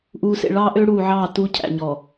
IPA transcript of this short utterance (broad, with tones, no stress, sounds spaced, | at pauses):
ʔ uː˨ s ḛ˨ ɭ ɑː˦ ʔ ø˦ ɽ uː˨ ʕ ɑː˦˨ t u˦ cʰ æ̰˨ ɲ ɔ˨